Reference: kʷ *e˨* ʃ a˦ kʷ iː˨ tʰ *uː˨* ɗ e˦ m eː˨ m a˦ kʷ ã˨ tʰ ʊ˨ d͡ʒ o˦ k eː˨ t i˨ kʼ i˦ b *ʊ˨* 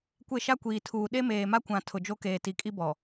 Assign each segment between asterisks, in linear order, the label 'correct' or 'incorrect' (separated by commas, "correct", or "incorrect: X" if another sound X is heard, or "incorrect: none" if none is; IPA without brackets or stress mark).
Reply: incorrect: e˦˨, correct, incorrect: ɔ˨